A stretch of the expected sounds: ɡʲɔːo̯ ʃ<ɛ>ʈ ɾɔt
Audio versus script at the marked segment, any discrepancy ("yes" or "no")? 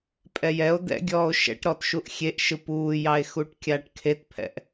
yes